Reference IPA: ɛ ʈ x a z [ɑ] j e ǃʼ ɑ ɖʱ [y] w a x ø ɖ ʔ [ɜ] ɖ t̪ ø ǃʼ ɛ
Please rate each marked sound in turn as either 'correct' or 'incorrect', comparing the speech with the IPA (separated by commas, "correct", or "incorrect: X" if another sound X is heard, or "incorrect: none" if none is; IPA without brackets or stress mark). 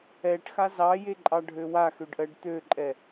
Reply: correct, incorrect: ø, correct